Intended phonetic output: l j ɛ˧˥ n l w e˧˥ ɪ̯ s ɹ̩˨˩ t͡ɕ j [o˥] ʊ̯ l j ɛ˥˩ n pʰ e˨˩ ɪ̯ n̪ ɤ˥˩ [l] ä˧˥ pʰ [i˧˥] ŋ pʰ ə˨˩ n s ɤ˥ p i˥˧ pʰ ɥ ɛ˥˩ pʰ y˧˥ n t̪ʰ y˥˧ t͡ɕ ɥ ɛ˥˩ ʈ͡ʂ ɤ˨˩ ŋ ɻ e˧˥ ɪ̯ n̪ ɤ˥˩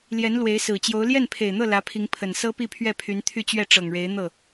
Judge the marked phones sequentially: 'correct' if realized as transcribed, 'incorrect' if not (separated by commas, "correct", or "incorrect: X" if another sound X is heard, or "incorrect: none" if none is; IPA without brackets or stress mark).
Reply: incorrect: o˧˥, correct, correct